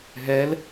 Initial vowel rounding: unrounded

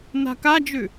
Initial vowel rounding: unrounded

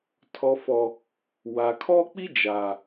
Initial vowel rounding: rounded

